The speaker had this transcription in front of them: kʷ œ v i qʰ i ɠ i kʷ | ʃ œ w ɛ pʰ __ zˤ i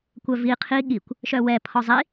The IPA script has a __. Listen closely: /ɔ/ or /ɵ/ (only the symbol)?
ɔ